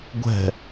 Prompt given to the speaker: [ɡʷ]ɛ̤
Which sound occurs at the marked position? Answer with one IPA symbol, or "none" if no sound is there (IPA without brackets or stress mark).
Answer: ɡʷ